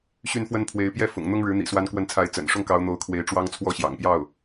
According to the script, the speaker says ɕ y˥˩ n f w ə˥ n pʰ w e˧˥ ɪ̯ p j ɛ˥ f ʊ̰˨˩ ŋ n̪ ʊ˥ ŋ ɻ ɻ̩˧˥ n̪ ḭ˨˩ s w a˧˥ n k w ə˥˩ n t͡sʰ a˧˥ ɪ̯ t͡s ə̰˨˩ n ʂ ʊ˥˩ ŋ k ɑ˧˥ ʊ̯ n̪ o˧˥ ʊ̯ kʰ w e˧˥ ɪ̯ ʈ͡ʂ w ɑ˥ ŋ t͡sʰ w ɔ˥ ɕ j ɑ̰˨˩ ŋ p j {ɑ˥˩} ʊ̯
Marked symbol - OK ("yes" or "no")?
yes